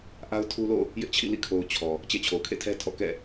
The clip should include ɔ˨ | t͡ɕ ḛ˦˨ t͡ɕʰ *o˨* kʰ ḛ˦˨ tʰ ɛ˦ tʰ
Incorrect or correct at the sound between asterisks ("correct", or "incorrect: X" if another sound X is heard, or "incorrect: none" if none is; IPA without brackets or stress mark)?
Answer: correct